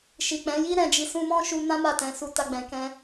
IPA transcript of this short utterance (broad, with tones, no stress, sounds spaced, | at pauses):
ʃ i˨ k͡p ɛ̃˨˦ j i˦ ɾ ɛ̃˧ d͡ʒ i˧ s ũ˧ m ɔ̃˦ ʃ u˧ n ã˦ m a˦˨ t ɛ̃˨˦ s u˧ t a˧ ɡ͡b ɛ̃˨ k ɛ̃˧